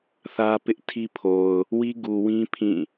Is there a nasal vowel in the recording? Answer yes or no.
yes